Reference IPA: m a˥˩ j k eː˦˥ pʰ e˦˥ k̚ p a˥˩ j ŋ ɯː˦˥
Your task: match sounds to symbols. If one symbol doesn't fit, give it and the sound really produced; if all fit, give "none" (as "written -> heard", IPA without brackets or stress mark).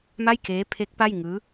none